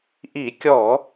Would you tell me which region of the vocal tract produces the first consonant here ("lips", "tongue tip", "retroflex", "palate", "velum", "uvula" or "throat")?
throat